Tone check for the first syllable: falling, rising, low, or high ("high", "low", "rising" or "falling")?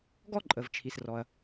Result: high